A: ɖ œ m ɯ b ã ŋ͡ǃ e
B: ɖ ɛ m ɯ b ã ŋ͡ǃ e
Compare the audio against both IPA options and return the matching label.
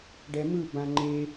B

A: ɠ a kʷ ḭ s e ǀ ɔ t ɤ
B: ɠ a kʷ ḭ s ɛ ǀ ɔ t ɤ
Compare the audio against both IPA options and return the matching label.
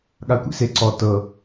A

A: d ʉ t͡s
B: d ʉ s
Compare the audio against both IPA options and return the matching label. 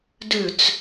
A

